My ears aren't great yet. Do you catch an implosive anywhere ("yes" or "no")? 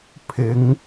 no